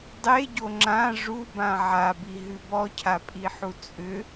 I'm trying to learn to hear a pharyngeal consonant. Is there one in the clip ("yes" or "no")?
yes